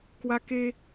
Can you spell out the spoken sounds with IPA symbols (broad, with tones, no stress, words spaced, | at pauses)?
kwa˧ke˧